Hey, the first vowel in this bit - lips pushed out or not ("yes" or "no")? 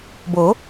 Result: yes